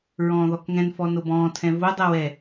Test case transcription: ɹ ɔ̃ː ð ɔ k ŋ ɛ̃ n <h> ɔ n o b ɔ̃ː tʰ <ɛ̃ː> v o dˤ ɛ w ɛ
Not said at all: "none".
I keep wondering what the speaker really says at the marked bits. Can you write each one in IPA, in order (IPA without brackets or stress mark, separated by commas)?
f, ɛ̃